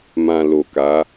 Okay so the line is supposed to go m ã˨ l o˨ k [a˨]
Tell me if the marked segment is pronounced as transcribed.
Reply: no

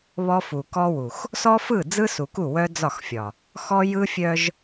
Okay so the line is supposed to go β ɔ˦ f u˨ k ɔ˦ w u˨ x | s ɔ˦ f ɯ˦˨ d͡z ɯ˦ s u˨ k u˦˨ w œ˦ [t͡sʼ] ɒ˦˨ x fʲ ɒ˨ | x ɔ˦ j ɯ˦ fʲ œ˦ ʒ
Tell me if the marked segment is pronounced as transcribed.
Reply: no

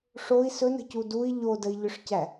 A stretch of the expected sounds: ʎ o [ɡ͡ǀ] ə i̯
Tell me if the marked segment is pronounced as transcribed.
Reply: no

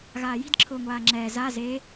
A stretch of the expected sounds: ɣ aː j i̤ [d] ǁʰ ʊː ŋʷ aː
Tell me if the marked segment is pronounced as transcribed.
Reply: yes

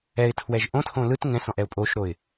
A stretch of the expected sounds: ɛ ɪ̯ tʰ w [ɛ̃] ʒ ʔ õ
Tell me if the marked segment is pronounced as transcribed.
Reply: no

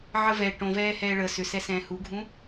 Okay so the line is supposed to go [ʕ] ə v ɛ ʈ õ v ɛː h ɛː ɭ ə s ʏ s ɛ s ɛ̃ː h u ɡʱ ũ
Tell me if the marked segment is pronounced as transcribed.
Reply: yes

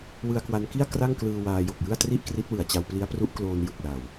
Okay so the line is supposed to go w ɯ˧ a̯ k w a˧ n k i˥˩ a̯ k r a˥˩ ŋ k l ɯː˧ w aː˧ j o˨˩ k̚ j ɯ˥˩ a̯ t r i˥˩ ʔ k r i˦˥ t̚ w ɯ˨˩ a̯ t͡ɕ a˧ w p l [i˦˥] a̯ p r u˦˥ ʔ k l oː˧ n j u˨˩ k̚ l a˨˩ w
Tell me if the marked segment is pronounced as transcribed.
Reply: yes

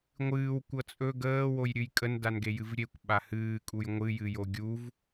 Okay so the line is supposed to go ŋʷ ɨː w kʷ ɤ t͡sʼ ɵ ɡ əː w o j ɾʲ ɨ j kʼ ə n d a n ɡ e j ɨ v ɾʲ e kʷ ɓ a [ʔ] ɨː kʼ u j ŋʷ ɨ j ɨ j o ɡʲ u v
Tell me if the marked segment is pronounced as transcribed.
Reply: no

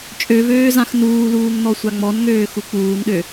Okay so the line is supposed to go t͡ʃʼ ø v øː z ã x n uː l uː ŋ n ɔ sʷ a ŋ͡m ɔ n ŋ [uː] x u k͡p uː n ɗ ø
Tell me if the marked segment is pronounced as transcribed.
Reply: no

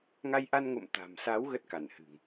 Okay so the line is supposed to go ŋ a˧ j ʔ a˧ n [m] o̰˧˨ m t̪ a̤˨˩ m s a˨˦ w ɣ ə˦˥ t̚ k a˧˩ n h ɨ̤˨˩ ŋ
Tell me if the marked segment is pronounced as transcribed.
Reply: no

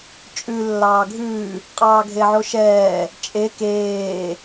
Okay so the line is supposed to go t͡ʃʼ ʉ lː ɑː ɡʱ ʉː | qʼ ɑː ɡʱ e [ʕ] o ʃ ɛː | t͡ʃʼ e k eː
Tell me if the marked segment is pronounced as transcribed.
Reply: yes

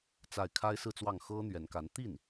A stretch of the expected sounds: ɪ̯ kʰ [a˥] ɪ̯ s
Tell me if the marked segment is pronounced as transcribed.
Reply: yes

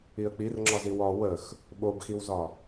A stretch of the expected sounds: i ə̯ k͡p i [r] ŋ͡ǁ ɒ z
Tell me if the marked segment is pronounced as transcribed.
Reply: yes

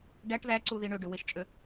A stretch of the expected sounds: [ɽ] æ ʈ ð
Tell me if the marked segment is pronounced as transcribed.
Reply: no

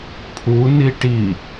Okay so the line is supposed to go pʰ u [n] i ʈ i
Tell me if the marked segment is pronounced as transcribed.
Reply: yes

